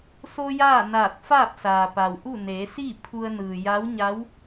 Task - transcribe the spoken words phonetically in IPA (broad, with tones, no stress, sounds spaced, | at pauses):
s o˧ j aː˥˨ n aː˧˩ t̚ f aː˥˨ p̚ s aː˩ p a˩ w ʔ u˥˨ n eː˩˧ s iː˥˨ pʰ u˧ ə̯ n ɯː˩ j a˧˥ w ɲ a˧˥ w